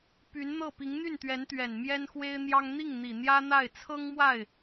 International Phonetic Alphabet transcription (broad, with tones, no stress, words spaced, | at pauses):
py˧˥nn̪ɤ˥˩ pi˧˥ŋn̪y˥˩nt̪ɥɛ˧˥n t̪ɥɛ˨˩nmjɛ˥nxwe˥ɪ̯n̪jɑ˥ŋ n̪i˥˩ŋn̪i˨˩ n̪jä˥n̪a˥˩ɪ̯ t͡sʰɤ˥ŋ mwa˥˩ɪ̯